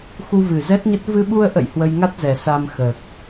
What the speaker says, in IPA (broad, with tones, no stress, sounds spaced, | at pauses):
x u˧ v ɨ˨˩ z ɛ˦˥ t̚ ɲ ə˦˥ t̚ v ɨ˧ ɓ u˧ ə̯ ʔ ə̰˧˨ j h w ə˧ j ŋ a˦˥ t̚ z ɛ˨˩ s a˧ m x əː˨˩ k̚